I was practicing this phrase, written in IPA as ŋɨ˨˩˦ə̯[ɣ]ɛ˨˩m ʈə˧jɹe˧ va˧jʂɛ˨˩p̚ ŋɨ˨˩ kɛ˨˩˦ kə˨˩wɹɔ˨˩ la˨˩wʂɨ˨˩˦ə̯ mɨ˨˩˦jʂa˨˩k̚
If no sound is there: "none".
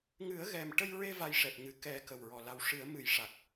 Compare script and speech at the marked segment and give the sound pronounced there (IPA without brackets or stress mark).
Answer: ɣ